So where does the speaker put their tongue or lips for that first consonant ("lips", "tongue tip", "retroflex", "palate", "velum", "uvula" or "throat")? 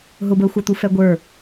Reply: throat